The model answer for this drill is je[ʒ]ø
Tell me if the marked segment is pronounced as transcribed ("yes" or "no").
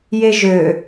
yes